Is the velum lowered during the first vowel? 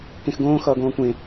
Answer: yes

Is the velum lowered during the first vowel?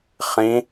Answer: yes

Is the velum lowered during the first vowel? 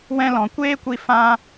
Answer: yes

